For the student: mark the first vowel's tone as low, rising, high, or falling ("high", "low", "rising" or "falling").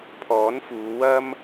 rising